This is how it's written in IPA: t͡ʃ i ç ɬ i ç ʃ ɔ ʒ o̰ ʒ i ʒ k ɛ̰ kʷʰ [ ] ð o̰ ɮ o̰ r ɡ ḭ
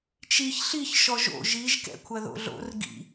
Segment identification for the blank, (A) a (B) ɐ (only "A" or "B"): B